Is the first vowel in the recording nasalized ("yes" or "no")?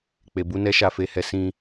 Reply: no